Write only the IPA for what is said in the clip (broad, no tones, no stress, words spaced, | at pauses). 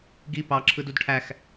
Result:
ɡi pɑǁʰɯd udʈʰæx